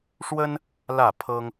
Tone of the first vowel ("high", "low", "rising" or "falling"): high